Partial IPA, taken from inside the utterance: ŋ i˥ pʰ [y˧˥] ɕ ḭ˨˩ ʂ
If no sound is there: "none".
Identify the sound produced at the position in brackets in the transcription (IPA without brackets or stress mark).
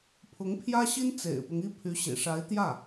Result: y˧˥